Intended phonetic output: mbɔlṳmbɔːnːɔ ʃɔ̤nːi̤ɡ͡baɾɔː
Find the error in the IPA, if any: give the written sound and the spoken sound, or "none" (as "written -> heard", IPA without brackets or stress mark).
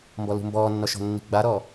none